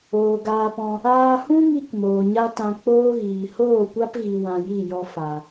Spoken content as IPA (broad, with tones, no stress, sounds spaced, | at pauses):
oː˨ ɡ aː˧ p ɔ̃˧ | aː˧ h ũ˦ ŋ i˧ k m oː˨ ɲ a˦ t ã˧ k͡p oː˦ ɣ iː˨ h oː˦˨ kʷ a˦ p ɣ i˨ w ã˧ j i˦˨ j ɔ˦ f a˨